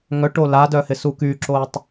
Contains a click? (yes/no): yes